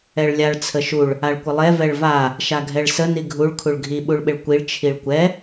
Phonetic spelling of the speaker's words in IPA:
ɛɭlʲaɭ t͡sʰəʃuɭ | aɭkʷəlˠɛ vɛɭva | ʃaɡʱɛɭsə niɡʱuɭ kʰuɭɡʱi ɓuɭɓɪɭkʷiɭ t͡ʃʰiɭkʷɛ

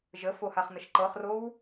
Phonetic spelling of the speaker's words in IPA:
ʒəfohaχnəʃ ǃɤχrow

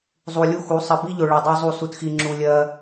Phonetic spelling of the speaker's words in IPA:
zˤu˨lʲu˦xu˨˦ sˤɜ˨bi˦ʎo˨ɭɜ˨ dˤo˦zˤu˦˨ su˦txi˦ŋ͡ǁu˦ lʲɜ˦

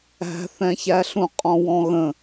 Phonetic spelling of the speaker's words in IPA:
æ̤θɛ̃çæɬũ qʼɔ̃wɔ̃ɣə̃

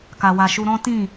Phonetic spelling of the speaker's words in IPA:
ka˨wa˨ʃu˧ɾɔ̃˦ tĩ˦˨

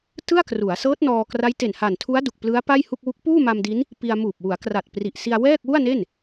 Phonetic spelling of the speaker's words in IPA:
tɯ˥˩a̯kru˩˦a̯sɤː˦˥t̚ nɔː˧kra˦˥j te˨˩nha˨˩ntʰu˦˥a̯ du˨˩k̚plɯ˦˥a̯ pa˥˩jhu˥˩k̚ wu˦˥k̚ puː˥˩ma˧mdi˦˥n | pi˧a̯ muː˨˩p̚ wu˩˦a̯kra˨˩t̚ pri˨˩ʔsi˧a̯ wɛː˥˩k̚ wu˥˩a̯ne˥˩n

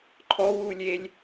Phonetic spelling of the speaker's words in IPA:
ǃʰɔwuːlʲelʲ

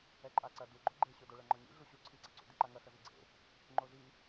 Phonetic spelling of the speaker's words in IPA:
ɛǃʼaǀɐ duɡ͡ǃo ɡ͡ǃeɕodoɭɐ ŋ͡ǃɔɲḭ ɮuɕu ǀʰiɡ͡ǀaǀṵ diǃaŋɐ xɐziɡ͡ǀḛ | ŋ͡ǃozi

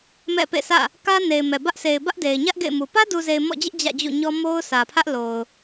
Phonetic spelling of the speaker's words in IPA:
mɛ̰˦˨pḛ˦˨sʰä̰˦˨ | kä˦ne˨ɪ̯ mɛ˨bä˦ʔ se˨ɪ̯bä˦ʔde˨ɪ̯ɲä˦ʔ ɡḛ˦˨ɪ̯mu˨ pä˦du˨ze˨ɪ̯ mɔ̰˦˨d͡ʑɪ˦ʔ d͡ʑä̰˦˨d͡ʑṵ˦˨ɲɔ˦ mo˦ʊ̯sä˨pʰä˦ʔ lo˨ʊ̯

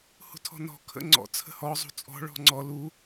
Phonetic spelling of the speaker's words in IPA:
hṳtʰɔ̤nɔ̤ kʰə̰ŋ͡ǀɔ̰ t͡sʰə̤hɔ zˤṳt͡sʼɔ̤ ɭɔ̤ŋ͡ǀɔ lu

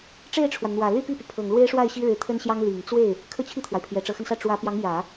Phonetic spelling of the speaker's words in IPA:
ʈ͡ʂe˥˩ɪ̯ʈ͡ʂʰwa˩nn̪wä˨˩ ly˥˧pi˥˩py˩ pʰɤ˨˩ŋlwe˥ɪ̯ʂwa˥˩ɪ̯ ɕi˥ɻɻ̩˧˥t̪ʰə˥nɕjɑ˥ŋ li˨˩ŋ t͡swe˥˩ɪ̯ | kʰɤ˥˧t͡ɕʰi˥˩t̪ʰwa˩ɪ̯ pʰjɛ˨˩ʈ͡ʂɤ˧˥xə˧nsä˥˩ ʈ͡ʂwä˧˥pjɑ˧˥ŋ jä˨˩˦

